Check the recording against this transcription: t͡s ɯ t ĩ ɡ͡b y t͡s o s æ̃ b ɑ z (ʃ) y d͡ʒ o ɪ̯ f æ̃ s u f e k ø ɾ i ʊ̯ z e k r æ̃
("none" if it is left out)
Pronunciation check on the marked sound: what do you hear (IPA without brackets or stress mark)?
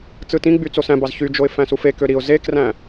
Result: ç